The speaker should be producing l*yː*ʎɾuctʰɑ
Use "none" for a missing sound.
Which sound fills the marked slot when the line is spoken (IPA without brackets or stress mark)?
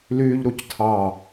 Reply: yː